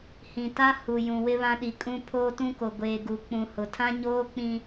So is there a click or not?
no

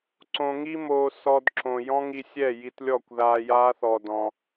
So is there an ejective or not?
no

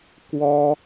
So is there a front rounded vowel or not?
no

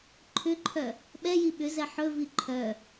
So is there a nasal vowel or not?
no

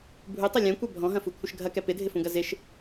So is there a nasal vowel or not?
yes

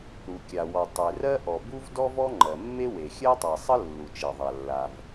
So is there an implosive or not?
no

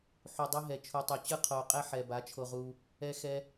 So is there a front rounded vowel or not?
no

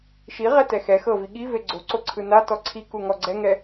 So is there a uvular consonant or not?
yes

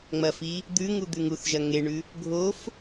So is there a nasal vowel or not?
no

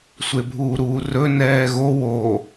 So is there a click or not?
no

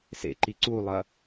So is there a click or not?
yes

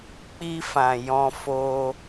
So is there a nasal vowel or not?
yes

